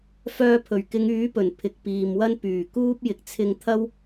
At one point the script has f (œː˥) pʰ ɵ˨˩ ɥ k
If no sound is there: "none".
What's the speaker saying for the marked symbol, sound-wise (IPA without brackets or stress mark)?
œː˧